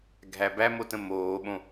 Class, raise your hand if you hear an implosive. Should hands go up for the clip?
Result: yes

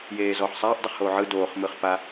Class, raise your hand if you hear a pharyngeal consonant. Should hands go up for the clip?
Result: yes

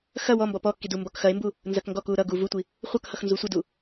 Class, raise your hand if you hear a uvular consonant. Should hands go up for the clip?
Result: yes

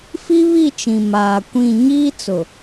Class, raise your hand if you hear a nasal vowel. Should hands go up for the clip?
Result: yes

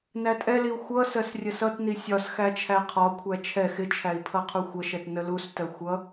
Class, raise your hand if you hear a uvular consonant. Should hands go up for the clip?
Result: yes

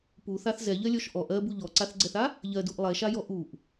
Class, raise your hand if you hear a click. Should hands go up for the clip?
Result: yes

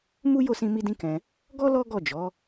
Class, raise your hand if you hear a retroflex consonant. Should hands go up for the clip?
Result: no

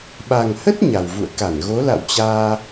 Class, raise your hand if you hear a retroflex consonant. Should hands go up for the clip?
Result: no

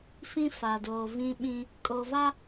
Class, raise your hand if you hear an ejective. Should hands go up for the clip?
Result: yes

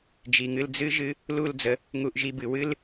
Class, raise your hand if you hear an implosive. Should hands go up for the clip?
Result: no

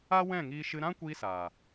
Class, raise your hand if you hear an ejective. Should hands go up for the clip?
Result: no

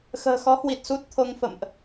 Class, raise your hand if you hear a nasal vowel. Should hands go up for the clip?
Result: no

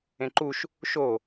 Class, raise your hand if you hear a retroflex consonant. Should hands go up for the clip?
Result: no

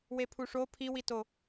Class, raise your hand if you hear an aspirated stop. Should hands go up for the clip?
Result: yes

